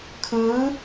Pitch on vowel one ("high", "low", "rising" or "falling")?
rising